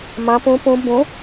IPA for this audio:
m ɐ̃ p ũ p ũ b ũ

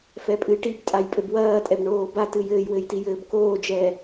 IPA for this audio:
f ɛ pʼ ɨ j ʈ i b tʼ a j pʼ ɘ b w ɐː tʼ ɛ b ɳ oː b a t ɨ j ɘː j w ɘ j t i j ɘː b k oː d͡ʒ ɛː

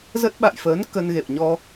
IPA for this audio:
z ə˦˥ t̚ ɓ a̰˧˨ j f əː˨˦ n k ə˧ n ɣ ḛ˧˨ w ɲ ɔ˧

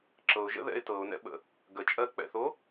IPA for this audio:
ǁ ɤ ʊ̯ ʒ ə̰ ð ɛ̰ ɪ̯ t ɤ ʊ̯ n ɛ̰ ɓ ə̰ | ɡ ə t͡ʃʼ ɜ k͡p ɛ̰ θ o

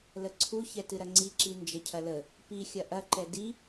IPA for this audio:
l ə ǀʰ u ç ɛ t ɨ ɾ ɐ ŋ͡ǀ i ǁ i n d͡ʒ ɘ cʰ ɐ l ə | p i xʲ ɐ ʔ ɐ ǃ ɛ d i

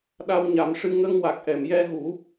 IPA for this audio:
ɗ a˧ w ɲ a˨˩ m ʂ ɨ˧ ŋ ə˧ ŋ w a˨˩ k̚ ʔ ɛ˨˩˨ m j ɛ˧ ɣ u˨˩˦

